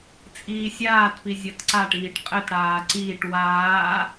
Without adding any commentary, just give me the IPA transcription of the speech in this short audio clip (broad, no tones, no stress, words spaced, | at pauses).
t͡sʼiːsʲaːtpi zʲɐtǀaʈiːʈ qʼɘtɽaː ǀiːʈ waː